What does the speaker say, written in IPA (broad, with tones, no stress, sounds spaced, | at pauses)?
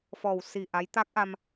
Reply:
f ɔ˨˩ w s i˨˩ ʔ a˧˥ j t̪ a˦˥ k̚ ʔ a˧ m